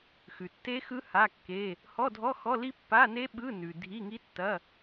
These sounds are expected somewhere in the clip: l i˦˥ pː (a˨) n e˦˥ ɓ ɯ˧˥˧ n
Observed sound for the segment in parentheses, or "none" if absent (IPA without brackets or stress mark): a˧˥˧